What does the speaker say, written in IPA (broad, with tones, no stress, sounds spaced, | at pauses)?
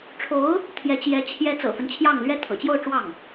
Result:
ʈ͡ʂʰ o˧˥ ʊ̯ | t̪ʰ j ɛ˧˥ t͡ɕ j ɛ˧˥ t͡ɕʰ j ɛ˧˥ t͡s ɤ̰˨˩ f ə˦ n t͡ɕʰ j ɑ˥˩ ŋ l ɥ ɛ˥ t̪ʰ ɤ̰˨˩ t͡ɕ j o˥˧ ʊ̯ ʈ͡ʂ w ɑ˥˩ ŋ